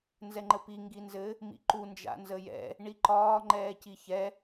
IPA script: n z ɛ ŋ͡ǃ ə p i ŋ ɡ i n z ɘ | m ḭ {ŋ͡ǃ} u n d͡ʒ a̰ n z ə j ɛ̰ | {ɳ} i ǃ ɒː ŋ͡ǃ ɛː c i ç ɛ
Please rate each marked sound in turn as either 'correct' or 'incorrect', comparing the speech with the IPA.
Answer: incorrect: ǃ, correct

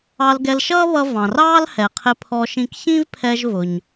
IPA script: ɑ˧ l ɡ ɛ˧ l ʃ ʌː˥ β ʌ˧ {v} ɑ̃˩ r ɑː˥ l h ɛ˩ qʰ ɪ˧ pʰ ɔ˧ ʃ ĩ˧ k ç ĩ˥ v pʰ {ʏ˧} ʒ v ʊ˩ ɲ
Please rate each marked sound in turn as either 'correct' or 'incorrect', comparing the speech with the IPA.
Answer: correct, incorrect: ɛ˧

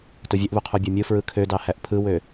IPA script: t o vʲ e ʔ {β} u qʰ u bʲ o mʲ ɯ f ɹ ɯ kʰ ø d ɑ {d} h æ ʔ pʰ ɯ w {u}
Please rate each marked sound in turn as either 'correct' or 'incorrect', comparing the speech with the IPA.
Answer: correct, incorrect: none, incorrect: ø

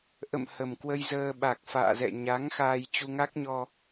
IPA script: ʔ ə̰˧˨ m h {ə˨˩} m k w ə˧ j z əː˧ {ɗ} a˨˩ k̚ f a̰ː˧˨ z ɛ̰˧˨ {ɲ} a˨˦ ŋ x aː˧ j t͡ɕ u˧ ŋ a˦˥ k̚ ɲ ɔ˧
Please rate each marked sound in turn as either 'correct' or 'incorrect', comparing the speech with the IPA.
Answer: correct, incorrect: ɓ, correct

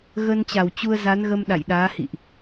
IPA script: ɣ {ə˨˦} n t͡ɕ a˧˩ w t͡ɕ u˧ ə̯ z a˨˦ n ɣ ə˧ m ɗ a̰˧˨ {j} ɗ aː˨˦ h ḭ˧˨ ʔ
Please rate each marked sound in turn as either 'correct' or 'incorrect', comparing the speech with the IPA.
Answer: incorrect: ə˧, correct

